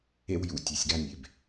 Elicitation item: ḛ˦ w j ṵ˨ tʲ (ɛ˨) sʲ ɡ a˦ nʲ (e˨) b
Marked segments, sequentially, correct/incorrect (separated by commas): correct, correct